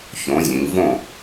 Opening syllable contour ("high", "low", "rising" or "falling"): rising